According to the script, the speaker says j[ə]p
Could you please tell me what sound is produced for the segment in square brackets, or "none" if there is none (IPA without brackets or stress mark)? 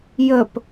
ə